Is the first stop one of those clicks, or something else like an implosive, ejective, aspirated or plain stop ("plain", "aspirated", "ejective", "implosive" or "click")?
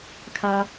aspirated